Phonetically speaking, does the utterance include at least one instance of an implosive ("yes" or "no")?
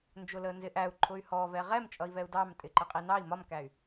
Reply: no